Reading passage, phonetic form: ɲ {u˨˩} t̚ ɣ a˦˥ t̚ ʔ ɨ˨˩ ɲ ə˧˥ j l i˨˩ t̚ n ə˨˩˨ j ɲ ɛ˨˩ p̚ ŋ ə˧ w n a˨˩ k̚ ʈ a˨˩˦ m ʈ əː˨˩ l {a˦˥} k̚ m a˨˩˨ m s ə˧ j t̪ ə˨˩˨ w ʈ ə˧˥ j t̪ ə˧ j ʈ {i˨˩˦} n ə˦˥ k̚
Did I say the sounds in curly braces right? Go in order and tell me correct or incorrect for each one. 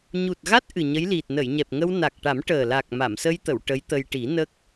correct, incorrect: a˨˩, correct

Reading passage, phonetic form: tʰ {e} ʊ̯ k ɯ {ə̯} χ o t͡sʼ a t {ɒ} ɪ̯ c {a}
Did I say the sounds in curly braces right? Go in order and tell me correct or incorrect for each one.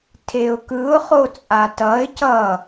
correct, incorrect: ʊ̯, incorrect: ʌ, incorrect: ʌ

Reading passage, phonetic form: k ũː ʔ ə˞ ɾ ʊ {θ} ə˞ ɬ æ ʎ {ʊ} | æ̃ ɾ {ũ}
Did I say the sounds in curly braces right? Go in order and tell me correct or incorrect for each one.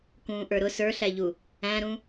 incorrect: s, incorrect: u, correct

